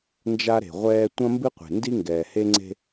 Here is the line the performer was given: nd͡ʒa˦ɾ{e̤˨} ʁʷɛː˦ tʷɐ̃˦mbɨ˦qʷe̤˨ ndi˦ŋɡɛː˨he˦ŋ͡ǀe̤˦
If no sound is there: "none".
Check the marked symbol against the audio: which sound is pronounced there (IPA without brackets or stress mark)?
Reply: e̤˨